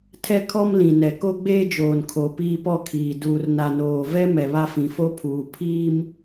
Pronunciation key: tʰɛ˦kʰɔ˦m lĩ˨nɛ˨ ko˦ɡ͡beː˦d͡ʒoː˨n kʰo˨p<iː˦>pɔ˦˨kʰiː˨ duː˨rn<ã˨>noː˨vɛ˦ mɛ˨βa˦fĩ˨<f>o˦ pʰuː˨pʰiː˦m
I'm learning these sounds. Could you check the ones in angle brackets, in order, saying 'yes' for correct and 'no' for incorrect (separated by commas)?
yes, no, yes